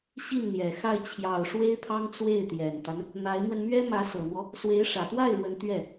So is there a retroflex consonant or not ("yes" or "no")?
yes